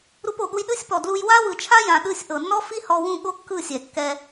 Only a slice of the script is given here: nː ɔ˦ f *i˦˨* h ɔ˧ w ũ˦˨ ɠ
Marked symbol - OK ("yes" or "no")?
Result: no